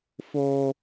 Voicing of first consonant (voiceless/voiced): voiceless